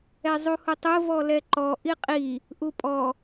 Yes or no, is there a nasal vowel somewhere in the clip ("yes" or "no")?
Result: no